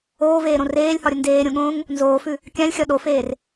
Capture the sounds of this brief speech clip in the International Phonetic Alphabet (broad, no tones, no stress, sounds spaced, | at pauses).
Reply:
oː v eː ɾ õ r eː lʲ h ɒ ɾʲ ə n d eː ɾʲ õ ɠ õː ŋ | n z oː f ʉ | kʲ ã lʲ xʲ ɒ ɗ o f eː r